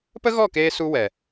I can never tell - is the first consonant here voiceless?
yes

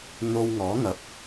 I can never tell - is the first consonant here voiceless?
no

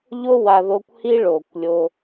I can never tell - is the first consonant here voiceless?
no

